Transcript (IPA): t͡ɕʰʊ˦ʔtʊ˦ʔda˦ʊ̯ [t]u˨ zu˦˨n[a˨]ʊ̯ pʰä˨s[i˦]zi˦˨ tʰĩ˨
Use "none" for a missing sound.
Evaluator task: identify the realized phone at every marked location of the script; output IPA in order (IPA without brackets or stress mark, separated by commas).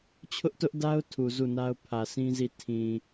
tʰ, a˦, ĩ˦